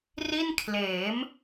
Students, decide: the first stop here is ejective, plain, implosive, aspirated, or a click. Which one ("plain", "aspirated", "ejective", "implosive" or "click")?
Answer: aspirated